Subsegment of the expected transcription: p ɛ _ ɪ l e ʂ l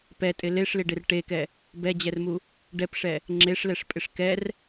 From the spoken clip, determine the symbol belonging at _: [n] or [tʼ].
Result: tʼ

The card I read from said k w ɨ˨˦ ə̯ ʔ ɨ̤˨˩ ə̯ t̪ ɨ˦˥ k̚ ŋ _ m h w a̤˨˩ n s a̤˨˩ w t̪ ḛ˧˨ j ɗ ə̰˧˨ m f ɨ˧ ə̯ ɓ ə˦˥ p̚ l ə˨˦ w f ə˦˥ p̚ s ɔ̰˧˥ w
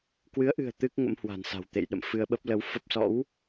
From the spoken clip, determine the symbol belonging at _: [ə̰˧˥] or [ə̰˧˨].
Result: ə̰˧˥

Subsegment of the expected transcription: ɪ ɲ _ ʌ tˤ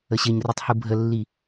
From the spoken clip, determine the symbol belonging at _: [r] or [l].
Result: r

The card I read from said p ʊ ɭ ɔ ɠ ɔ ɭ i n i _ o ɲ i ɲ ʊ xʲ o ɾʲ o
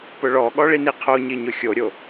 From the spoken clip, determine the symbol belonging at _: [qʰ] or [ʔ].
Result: qʰ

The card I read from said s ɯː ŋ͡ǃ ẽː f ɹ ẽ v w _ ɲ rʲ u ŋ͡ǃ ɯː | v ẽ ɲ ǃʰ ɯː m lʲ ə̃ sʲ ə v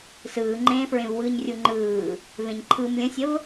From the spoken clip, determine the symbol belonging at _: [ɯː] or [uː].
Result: ɯː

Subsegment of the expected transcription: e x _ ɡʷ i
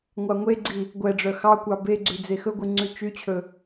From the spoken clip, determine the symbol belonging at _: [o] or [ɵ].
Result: ɵ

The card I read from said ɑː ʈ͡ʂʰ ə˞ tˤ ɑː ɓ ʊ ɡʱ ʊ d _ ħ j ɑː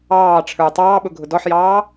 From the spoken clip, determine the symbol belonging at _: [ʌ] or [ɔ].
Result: ɔ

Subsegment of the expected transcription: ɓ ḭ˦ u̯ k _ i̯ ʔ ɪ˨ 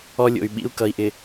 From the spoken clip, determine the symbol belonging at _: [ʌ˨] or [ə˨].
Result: ʌ˨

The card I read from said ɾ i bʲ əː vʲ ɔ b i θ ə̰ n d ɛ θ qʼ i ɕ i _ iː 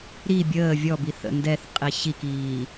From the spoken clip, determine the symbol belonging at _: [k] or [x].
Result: k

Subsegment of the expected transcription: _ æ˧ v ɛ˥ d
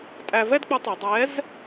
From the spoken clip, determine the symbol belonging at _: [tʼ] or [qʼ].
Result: tʼ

